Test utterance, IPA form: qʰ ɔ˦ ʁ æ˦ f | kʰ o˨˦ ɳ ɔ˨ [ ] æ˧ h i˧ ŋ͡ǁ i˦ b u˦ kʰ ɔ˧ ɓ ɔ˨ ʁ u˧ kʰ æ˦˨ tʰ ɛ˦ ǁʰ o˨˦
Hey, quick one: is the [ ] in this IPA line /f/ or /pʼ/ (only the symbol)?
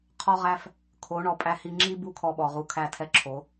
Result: pʼ